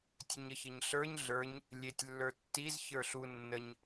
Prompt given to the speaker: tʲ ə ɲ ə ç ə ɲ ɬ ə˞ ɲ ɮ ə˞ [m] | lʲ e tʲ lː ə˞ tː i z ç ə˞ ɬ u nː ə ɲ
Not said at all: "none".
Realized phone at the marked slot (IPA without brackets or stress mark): ɲ